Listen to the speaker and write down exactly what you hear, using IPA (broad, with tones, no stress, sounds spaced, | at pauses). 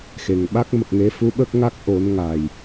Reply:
x e˨˩ ŋ ɓ a˦˥ k̚ m ə˨˩ k̚ ŋ e˧˥ f u˧˥ ɓ ə˦˥ k̚ ŋ a˦˥ k̚ ʔ o˨˩˦ n ŋ a˨˩ j